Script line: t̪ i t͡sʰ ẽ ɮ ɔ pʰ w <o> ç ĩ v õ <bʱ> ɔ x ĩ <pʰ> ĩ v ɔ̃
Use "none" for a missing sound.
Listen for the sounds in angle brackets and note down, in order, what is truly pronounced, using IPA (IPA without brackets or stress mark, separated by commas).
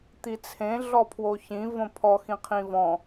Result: o, pʰ, qʰ